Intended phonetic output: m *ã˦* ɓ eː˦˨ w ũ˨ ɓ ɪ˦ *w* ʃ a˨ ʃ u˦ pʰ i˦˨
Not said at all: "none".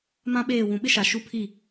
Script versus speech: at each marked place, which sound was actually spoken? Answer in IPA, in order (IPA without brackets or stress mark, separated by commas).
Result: ã˦, none